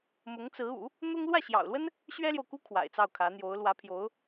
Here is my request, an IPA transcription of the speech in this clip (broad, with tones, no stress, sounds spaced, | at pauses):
m ʊ˧˥ ŋ t͡s ɹ̩˧˥ ṵ˨˩˦ | n̪ ʊ˥ ŋ l w ä˥˩ ɕ j ɑ̰˨˩ ʊ̯ l w ə˥ n | ɕ ɥ ɛ˥ l j o˨ ʊ̯ k u˥ kʰ w a̰˨˩ ɪ̯ t͡s ɑ˥˩ ʊ̯ kʰ ä˧˥ n̪ j o˧˥ ʊ̯ l w ä˧˥ pʰ j o˧˥ ʊ̯